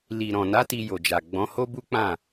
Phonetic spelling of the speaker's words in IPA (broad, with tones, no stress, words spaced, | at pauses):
li˨ɾɔ̃˨na˨˦ ti˧jo˨d͡ʒa˨ ɡ͡bɔ̃˨˦ho˦bu˦k͡pã˦˨